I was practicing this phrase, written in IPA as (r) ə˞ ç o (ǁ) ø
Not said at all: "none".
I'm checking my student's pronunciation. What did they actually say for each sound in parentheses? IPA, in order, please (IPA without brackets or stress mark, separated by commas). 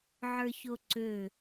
ʕ, ǀ